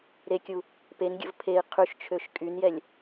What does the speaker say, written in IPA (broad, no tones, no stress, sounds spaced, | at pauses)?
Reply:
ɾ e kʲ u | p e n ɡʲ ə̰ v pʰ e i̯ qʰ y ʃ t͡ʃʰ ø ʃ kʼ y n j ɛ lʲ